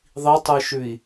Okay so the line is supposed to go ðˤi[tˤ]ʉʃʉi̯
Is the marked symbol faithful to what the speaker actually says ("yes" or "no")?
yes